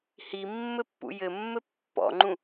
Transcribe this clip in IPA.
himːɘ pːṵjɘmːɘ pːɔ̰ŋ͡ǃũ

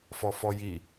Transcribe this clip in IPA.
fɔfɔji

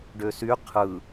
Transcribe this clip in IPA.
ɖøsy qʰɯ

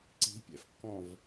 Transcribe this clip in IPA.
ǀi̤pʲɛ̰fkːɔ̃v

